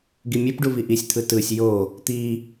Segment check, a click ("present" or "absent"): absent